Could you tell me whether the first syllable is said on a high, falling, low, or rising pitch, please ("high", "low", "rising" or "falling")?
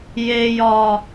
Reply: low